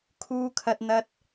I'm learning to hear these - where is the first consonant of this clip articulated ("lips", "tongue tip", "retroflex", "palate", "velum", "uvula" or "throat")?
velum